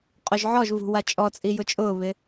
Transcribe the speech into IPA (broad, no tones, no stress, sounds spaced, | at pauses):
qʼ o ʒ ʕ ɔ ʒ v ṳ w a t͡ʃʼ ɔ t͡sʼ i j ʊ t͡ʃʼ ʊː β ɪ